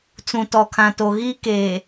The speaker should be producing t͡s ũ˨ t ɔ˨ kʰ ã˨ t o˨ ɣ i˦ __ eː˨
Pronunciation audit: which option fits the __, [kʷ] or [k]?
k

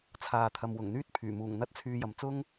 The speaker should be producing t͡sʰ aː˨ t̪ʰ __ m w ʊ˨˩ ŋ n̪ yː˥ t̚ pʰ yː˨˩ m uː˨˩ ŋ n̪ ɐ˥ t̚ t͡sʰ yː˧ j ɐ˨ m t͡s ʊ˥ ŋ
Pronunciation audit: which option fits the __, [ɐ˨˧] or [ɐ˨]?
ɐ˨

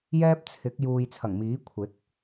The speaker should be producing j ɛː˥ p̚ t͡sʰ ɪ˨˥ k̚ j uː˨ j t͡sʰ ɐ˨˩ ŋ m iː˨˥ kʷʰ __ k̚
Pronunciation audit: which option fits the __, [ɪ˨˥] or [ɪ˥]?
ɪ˨˥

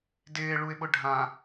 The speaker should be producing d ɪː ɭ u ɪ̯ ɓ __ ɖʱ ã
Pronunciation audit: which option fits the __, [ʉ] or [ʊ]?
ʊ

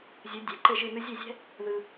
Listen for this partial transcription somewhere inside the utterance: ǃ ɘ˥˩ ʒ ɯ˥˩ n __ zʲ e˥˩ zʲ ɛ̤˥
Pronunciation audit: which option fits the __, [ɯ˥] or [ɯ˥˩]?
ɯ˥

